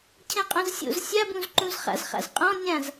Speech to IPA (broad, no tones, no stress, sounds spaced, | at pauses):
cʰ ɛ̃ qʼ õ z sʲ o̰ z sʲ a b ũ z ǃ ũ z χ a̰ z χ a̰ z qʼ ɔ̃ nʲ ã z